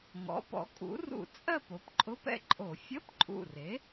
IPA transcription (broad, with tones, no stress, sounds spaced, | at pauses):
ŋ ɔ̰˩˥ p ɔ̰˩˥ kʼ ṵ˩˥ r ṵ˧˩˧ t͡sʼ ɜ˥˧ p o˩˥ p ǃʼ ʊ˧˥˧ p ɛ̰˥˧ ǃʼ o˧˩˧ fʲ ə˧˥˧ p ǃʼ ṵ˨˩ r e˩˥